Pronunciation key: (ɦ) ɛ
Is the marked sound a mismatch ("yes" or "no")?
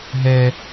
no